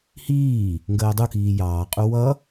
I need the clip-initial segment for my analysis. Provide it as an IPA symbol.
h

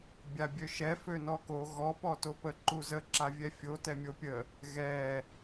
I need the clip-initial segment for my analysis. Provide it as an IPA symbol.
bʲ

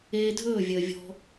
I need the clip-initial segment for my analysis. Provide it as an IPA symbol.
eː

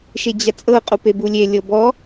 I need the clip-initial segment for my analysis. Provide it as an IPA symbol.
ʃ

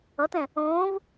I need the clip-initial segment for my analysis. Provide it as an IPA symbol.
ʌ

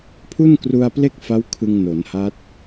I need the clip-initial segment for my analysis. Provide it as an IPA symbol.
pʰ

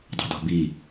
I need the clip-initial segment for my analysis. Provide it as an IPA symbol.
dˤ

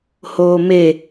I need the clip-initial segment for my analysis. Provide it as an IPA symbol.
h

